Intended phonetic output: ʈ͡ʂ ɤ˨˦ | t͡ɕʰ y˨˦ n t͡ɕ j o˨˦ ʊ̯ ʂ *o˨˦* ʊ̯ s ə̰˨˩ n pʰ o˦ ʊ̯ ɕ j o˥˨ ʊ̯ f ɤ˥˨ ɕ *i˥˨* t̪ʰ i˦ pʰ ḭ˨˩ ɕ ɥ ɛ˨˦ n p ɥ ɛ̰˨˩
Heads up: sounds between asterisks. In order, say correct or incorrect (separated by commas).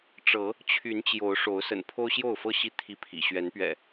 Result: correct, correct